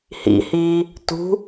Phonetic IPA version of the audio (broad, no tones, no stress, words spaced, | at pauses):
hḭhiː | tṳ